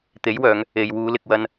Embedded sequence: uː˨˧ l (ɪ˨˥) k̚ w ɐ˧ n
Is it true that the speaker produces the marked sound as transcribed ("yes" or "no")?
no